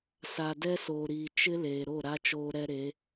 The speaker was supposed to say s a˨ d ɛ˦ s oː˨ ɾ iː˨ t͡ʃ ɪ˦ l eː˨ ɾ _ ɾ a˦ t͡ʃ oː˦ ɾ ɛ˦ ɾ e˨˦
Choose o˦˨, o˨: o˦˨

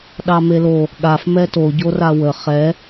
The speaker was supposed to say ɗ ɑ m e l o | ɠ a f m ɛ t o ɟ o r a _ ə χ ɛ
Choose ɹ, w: w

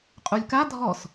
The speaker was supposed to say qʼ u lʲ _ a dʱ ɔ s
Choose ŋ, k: k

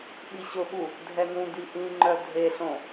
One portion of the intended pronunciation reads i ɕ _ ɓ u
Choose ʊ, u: ʊ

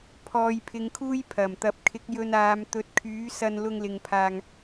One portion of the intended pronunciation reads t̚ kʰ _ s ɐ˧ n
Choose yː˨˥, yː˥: yː˨˥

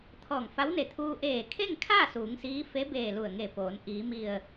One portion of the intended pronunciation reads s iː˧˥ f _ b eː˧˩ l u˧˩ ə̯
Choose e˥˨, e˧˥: e˧˥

